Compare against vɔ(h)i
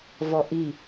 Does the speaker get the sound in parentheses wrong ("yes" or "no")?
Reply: yes